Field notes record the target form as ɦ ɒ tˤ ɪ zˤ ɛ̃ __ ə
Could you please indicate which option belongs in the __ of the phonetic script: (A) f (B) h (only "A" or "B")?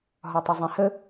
B